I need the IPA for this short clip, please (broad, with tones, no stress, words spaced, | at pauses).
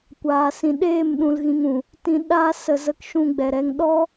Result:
kʷaː˨sĩ˨ ɗeː˦˨mɗũ˨l ɣĩ˧ŋũ˨ | tĩ˧ ɗaː˧sə˨zə˨˦k ʃũ˧ɡ͡bɛ˨ɾɛ˧ŋ ɗɔ˦